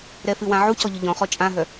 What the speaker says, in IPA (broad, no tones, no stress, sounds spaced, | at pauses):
ɾ ɛ f ɨ w ã ʕ u c ɔ ʎ ʊ ʎ ɔ̃ χ ɔ t͡ʃʼ ã ɦ œ